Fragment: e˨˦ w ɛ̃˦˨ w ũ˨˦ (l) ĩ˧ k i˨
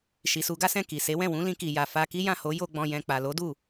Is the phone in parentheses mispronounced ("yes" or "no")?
no